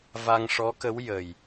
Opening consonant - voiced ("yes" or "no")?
yes